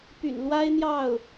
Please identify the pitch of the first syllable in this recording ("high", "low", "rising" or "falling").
low